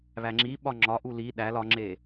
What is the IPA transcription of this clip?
βæŋ͡ǁiɓɒ ŋ͡ǁɒʔu li ɗæl ɒŋ͡ǁe

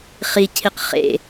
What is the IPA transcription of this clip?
χicʰiq χḛ

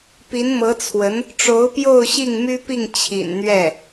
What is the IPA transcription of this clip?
pi˧˥nmɤ˧˥t͡sʰwə˧˥n | ʈ͡ʂo˧˥ʊ̯pjo˥˧ʊ̯ ɕi˥˩ŋmy˥pi˥˩ŋ t͡ɕʰḭ˨˩nn̪ɥɛ˥˩

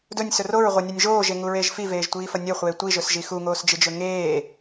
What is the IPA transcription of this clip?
dɵnʲsɵ roɹʁʷɐnʲanʲ ʒoːʒeŋuɹeːʒ fiveːʒtʷiːfɐ nʲɵχʷeː tʷiʒɵsʒi xuŋoːsd͡ʒɨd͡ʒɵ ŋeː

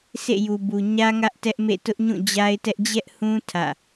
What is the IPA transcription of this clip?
sʰḛ˦˨ju˨bu˨ ɲä˦ ŋä˦ʔtɛ˦ʔmḛ˦˨ tʊ˦ʔɲũ˦˨d͡ʑa˦ɪ̯tɛ˦ʔ d͡ʑɛ˦ʔhũ˦ tʰä̰˦˨

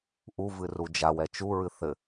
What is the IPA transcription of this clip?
ʔuvɨ rud͡ʒawɛ t͡ʃuɹɨ θɘ

